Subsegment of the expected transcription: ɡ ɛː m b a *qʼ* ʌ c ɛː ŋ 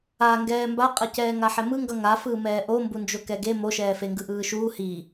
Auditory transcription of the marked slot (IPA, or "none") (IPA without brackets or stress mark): qʼ